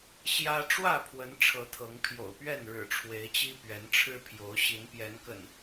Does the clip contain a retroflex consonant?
yes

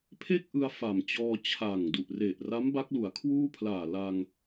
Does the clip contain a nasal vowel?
no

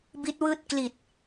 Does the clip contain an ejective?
no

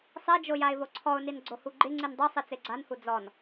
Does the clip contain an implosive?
no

